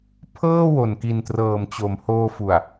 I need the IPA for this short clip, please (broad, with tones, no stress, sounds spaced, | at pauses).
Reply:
pʰ ɤː˥˩ w o˨˩ n k i˨˩ n t r ɤː˨˩ m t͡ɕ o˩˦ m h oː˧ f u˨˩ a̯